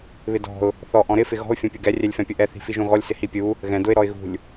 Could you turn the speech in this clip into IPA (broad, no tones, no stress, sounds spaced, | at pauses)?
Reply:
β ɪ d ɔ̤ ʊ̯ | θ ɔ ʔ ɔ̃ ɾ ɪ f ɪ ɣ ɔ̤ ʊ̯ fʲ õ pʲ ʊ ɡ ɛ rʲ ɛ lʲ f ɛ̃ pʲ ʊ ʔ ɛ θ i̤ f i ʒ õ ɣ ɔ lʲ s ɪ h i pʲ u | ɣ ɛ̃ d ʊ ɪ̯ ɾ ɔ ɪ̯ ɣ ṳ lʲ